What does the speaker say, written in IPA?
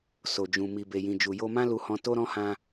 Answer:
so˨d͡ʒũ˨ mi˨be˨jĩ˨ d͡ʒu˨ jo˧mã˦ lu˧hɔ̃˧ to˦ɾɔ̃˦ hã˧

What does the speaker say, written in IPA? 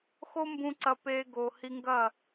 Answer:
xo˦mbũ˧ ǀɐ˧peː˧ɡo˨ hi˧ŋɡɐ˦˨

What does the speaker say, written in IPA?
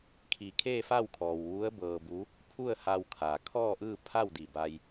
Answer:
kʰi˧˩kʰeː˥˨fa˥˨wkʰɔː˩w ʋu˧˥ə̯ bɤː˧bu˧˥ | pʰu˥˨ə̯ha˧wkʰa˩ kʰɔː˥˨ʔɯː˥˨ pʰa˥˨wdi˧˩ ba˧j

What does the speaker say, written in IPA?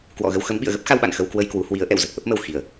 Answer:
kwɔ̰˧˨ɣə˧wxə˨˦m ɓḭ˧˨ə̯ɣə˦˥p̚xa˧wɓa̰˧˨n xə˧wkwə˧j kwu˨˦ hwi˨˦ə̯ ʔɛ̰˧˨wzə˨˩t̚ʔə˦˥p̚mə˨˩w xi˧˩˨ə̯

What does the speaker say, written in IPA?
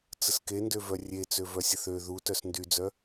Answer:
t͡səskendøvœ rʲe t͡søvœsʲəθø ðu tœsndyd͡zœ

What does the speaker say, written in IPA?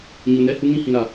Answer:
ɲu˨nɛ˦ hu˦ŋĩ˦hĩ˨ɾa˨

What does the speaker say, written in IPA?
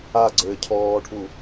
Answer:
aɡ͡ǀɘː cʰɔːʈʰu

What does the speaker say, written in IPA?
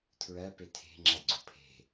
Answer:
tʰɹɜ petʰe̤ ŋ͡ǁaɡ͡ǀopʰe̤

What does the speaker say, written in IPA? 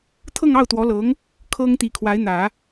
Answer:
t̪ʰɤ˥˧ŋɑ˥˩ʊ̯t̪wɔ˧˥lɤ˧˥ŋ | kʰɤ˥ŋ t̪i˧˥kʰwa˧˥ɪ̯n̪ä˨˩˦

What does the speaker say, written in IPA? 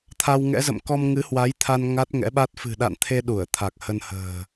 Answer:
t̪ʰa˧wŋɛ̰˧˥zə̰˧˨m kɔ˧mŋɨ˨˦hwa˨˦jt̪ʰa˧n ŋa˦˥t̚ŋɛ̰˧˥ɓa˦˥t̚ fɨ̤˨˩ɗa̰˧˨n t̪ʰe˧ ɗu˧˩ə̯t̪ʰa˨˩k̚hə˧nhə̤ː˨˩

